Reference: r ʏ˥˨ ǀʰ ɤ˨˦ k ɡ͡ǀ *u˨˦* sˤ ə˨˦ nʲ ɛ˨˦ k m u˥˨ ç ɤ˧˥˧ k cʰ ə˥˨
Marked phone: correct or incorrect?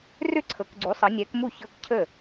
correct